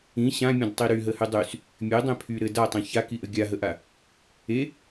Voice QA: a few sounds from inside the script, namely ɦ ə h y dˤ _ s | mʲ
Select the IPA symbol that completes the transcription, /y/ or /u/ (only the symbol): y